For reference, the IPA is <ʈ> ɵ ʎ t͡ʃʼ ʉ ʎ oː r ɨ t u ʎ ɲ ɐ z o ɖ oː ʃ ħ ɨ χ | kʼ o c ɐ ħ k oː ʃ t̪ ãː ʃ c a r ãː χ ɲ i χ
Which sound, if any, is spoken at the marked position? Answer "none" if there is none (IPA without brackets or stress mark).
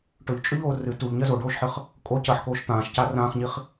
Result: ʈ